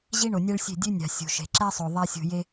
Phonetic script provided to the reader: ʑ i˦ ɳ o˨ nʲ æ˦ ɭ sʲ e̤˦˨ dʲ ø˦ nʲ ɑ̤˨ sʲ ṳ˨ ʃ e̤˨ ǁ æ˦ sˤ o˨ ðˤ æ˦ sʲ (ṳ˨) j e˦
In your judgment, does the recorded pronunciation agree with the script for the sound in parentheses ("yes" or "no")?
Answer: yes